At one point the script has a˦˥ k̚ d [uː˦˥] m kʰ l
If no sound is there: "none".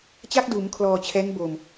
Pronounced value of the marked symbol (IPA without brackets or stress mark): uː˩˦